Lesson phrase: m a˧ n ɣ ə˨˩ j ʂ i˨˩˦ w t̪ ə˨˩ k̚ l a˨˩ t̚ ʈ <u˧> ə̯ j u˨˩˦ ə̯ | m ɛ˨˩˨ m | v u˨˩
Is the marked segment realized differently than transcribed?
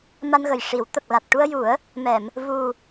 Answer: no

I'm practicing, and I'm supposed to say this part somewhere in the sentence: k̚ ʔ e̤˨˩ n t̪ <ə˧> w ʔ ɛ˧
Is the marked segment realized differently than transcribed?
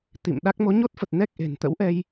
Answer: yes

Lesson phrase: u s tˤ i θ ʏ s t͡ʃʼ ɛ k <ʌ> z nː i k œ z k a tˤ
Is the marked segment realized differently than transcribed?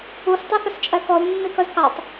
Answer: yes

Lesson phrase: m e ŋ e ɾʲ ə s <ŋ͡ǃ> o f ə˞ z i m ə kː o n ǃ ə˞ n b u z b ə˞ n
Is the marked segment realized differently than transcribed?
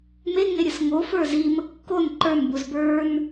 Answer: yes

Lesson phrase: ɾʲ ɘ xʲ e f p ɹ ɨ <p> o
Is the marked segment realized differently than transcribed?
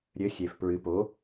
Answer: no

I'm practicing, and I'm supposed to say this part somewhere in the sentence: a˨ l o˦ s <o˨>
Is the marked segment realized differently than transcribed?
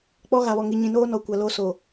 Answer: no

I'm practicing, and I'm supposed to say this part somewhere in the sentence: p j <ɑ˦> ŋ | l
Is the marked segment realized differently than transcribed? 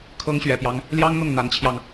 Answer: no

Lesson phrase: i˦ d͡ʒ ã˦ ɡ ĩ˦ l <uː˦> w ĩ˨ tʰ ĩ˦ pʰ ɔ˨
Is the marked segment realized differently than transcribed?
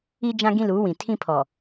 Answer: yes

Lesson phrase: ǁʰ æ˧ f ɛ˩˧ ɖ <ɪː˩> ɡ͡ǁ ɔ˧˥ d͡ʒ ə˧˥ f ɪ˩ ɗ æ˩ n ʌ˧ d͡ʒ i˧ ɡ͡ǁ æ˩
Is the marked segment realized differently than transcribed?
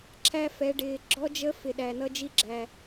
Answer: no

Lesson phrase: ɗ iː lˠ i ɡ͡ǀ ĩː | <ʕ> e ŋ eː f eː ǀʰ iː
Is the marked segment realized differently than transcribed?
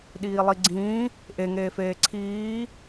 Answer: yes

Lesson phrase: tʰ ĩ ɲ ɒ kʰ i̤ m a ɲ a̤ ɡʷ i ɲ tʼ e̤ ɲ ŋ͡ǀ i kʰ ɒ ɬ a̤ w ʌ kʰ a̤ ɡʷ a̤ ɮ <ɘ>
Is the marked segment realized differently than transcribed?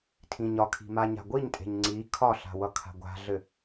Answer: no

